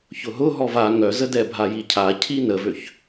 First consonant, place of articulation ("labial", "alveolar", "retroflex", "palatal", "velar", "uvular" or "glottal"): palatal